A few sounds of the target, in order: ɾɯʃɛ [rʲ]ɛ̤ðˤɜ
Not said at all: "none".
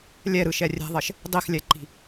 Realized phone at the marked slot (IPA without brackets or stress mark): rʲ